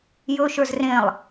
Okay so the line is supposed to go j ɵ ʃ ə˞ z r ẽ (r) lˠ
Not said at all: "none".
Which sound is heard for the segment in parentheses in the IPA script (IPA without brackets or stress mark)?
none